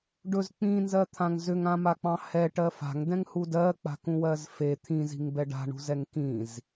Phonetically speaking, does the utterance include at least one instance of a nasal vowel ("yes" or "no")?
yes